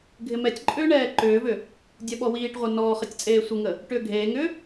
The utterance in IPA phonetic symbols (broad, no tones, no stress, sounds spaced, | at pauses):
ɡʱ ɪ m ɛ tʲ ǃʼ ʏː ɳ ɛː ǃ ʏː v ʏ | dʲ ɛ ɓ ɔ w iː ʈ ʁʷ ɛ n ɔː χ ɐ tʲ t͡sʼ eː sʷ ə ŋ ə | ʈ ʏː ɡʱ eː ŋ ʏː